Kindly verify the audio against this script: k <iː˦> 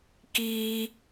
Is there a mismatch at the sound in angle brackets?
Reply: no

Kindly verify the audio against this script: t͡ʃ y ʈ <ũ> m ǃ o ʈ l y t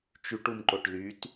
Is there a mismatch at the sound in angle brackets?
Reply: yes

